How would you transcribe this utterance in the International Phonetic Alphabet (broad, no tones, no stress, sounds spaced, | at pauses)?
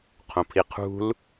qʰ õ pʰ i qʰ ṳ l